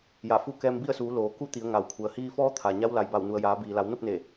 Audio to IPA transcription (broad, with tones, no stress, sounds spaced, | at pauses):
j a˧˩ f u˥˨ k ɛː˧ m b i˥˨ ə̯ s uː˩˧ l oː˩ k u˥˨ t̪ i˩˧ ə̯ ŋ a˩ w kʰ u˩ ə̯ h iː˧ f ɔː˧˥ t̪ʰ a˩ ɲ a˧˥ w l a˩ j b a˧˩ w n u˩ ə̯ j aː˩˧ b iː˩ l a˩˧ w n o˥˨ p̚ n e˧˩